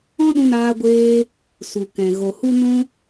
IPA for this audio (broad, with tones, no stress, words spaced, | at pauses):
ɔ̃˦ɗũ˧naː˧ɡʷeː˧ | su˨kɛ̃˨ ɣo˨hu˦nũ˦